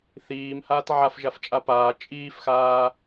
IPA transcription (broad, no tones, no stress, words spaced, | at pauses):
θiːmhaːt ʕafʒaft͡ʃʼa paː t͡ʃʼiːfxaː